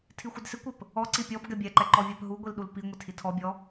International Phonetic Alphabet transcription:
tʰ i xʷ ɪ d s ɪ kʷ ɪ p | ɔ ǀ i pʲ ɔ b ɡ ɛ bʲ ɛ ǃ ɛ ǃ ɔ vʲ a p ɦ u ɡʷ i l ɗ u l p i ŋʷ ɪ tʰ i tʰ ɔ bʲ ɔ

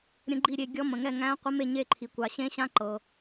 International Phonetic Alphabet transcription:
ɾʲ ə̃˦˥ ɡ͡ǃ i˥˧ ɾʲ e˥˧ ɡʲ ɔ˦˥ m ə̃˨ ŋ ɛ˥˧ ŋ æ̃˦˥ qʷ ə˦˥ m e˥˧ ɲ e˥˧ ǃʰ i˨ kʷ a˨ ɕ ẽ˦˥ ɕ ã˦˥ ǃ ɤ˨

